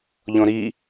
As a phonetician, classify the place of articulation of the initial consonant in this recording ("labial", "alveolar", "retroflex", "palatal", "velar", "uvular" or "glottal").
palatal